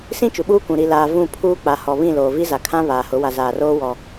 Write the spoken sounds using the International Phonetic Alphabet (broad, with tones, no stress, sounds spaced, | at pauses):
s ĩ˦ t͡ʃ u˨ ɓ uː˦ kʷ ũ˨ ɾ i˨ l aː˨ v ũ˦˨ pʰ uː˦ k͡p a˨ h ɔ˨ β ĩ˦˨ l oː˨ v i˦ z a˨ kʰ ã˦ β aː˨ h ʊ˨˦ w a˨ z aː˨ r oː˦ w ɔ˨